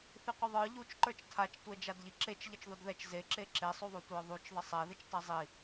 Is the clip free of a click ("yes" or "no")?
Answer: no